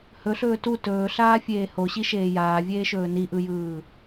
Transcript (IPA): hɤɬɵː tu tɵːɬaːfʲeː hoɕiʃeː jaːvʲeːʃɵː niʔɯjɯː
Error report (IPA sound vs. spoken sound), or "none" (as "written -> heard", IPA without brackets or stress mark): ɤ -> ɵ